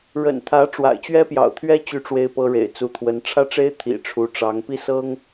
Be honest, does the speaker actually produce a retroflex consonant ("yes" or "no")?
yes